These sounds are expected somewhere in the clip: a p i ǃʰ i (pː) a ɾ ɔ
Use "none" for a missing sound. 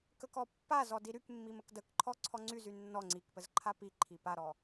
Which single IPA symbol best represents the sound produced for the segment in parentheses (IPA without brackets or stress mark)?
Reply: p